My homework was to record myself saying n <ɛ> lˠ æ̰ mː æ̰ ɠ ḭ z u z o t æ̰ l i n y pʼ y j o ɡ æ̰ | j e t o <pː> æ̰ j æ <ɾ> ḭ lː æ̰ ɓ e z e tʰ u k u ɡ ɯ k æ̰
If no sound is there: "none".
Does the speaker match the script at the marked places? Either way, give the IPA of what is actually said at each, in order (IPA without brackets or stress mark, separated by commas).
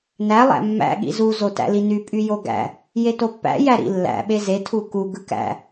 æ, pː, ɾ